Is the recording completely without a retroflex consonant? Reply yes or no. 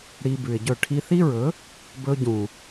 no